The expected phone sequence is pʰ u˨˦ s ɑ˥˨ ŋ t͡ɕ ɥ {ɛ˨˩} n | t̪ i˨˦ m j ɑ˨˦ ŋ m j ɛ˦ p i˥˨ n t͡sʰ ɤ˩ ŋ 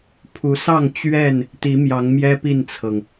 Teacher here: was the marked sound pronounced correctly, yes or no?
no